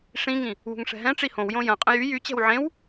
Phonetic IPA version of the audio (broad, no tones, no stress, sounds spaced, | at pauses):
ʂ ĩ ŋ ĩ | w ṳ ŋ ʂ ɛ̤ ɦ ɛ̃ ʈ͡ʂ i h õ w j õ j ɐ̃ qʼ ə̃ j y j y t͡ɕ ɛ̤ w ʕ ẽ w